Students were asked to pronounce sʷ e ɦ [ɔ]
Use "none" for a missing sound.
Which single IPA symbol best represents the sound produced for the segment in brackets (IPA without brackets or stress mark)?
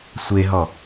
ɔ